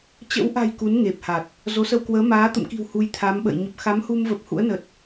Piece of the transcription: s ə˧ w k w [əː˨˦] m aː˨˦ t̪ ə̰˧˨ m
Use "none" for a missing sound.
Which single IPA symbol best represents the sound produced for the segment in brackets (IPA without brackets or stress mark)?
əː˨˦